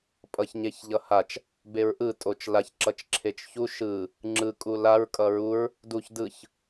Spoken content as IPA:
pʼ ʌ ç ɲ e ç ʎ ʌ h a t͡ʃ | b e ɹ ʔ ɯ tʼ o t͡ʃ l a ç ǁ ʌ t͡ʃ ǁʰ e t͡ʃ ç u ʃ ɯ | ŋ͡ǁ ɯ kʼ u l a ɹ kʼ ʌ ɹ u ɹ | d u ç d ɯ ç

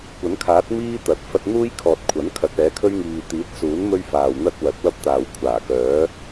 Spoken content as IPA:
kʷ ɐ˨˥ n kʰ aː˨˥ t̚ m iː˥ t̪ ɐ˨˥ t̚ f ɐ˧ t̚ n̪ uː˥ j kʰ ɔː˨ t̚ kʷʰ ɐ˨˥ n kʰ ɐ˨˥ t̚ ɛː˨˥ kʰ ɵ˥ ɥ ŋ iː˨ t̪ iː˨˥ t̚ s uː˨˥ n m ɵ˥ ɥ f aː˨ w n̪ ɐ˥ t̚ w ɐ˨˥ t̚ w ɐ˥ p̚ t̪ aː˨ w kʷʰ aː˨˩ k œː˨˥

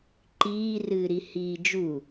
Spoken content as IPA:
ǃ iː r ɨː ɾ i h iː d͡ʒ u

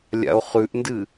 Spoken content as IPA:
lʲ a̰ o̯ χ ʉ ʔ n d ɨ

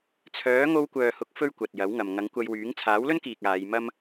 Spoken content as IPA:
t͡sʰ œː˨˥ ŋ o˧ w kʷ œː˨ h ʊ˨˥ k̚ f ɵ˥ ɥ kʷ ɐ˨ t̚ j ɐ˨˥ w ŋ ɐ˨ m ŋ ɐ˨˥ ŋ kʷ ɐ˧ j w yː˨˥ ŋ t͡sʰ aː˨˥ w l ɵ˥ n k iː˨ k̚ aː˨˧ j m ɐ˥ m

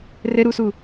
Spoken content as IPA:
r ɘ ɾ u s u

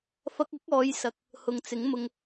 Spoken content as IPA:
f ɐ˧ k̚ ɐ˨˥ k̚ ɔː˨˧ j s ɐ˨˥ k̚ | h ʊ˨ ŋ t͡s ɪ˨˥ ŋ m ʊ˧ ŋ

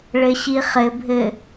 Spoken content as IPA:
ɭ ɘ ɕ i χ ɘ bʱ ɘ

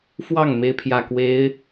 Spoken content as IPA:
f w ɑ˥˩ ŋ m e˥ ɪ̯ pʰ j ä˥˩ k w e˧˥ ɪ̯

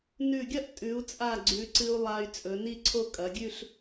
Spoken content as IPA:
n ʉ˧˩ ɡʲ ɐ˥ ʔ tʼ ʉ˩˧ u̯ t͡sʼ a˧˩ ɡ͡ǀ ʉ˩˧ ǀ ɨ˧ u̯ lˠ a˧ y̯ t͡sʼ ɵ˩˧ n i˥ ǀʰ o˥ kʼ ɐ˩˧ ɡʲ ʉ˥˧ ɬ

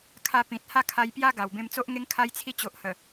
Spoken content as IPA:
kʰ a˧ p ĩ˨ t̚ h a˥˧ kʰ a˧ j p j a˦ ɡ a˨˩ w b ẽ˧ m t͡s o˦ ʔ ŋ e˦ ŋ kʰ a˧ j t͡sʰ i˧ t͡ɕ o˨ ʔ h ə˨˩

